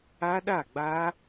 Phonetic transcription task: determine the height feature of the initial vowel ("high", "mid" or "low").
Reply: low